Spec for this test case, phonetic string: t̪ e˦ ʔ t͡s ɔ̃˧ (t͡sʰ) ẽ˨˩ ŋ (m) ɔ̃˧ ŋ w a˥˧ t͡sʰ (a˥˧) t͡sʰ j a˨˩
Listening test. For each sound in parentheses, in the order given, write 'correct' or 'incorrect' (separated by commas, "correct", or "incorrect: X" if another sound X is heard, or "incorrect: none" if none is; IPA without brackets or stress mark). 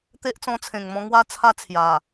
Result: correct, correct, correct